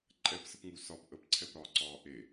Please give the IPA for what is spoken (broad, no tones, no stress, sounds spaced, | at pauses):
ǃʼ ɛ p s ə p ŋ u s ɒ p ʔ ə p ǀʰ ɛ p ɾ ɒː ǀ ɒː ʔ e